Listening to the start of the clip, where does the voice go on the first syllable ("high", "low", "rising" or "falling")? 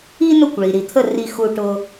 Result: high